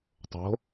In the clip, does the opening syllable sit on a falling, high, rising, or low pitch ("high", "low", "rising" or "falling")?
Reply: rising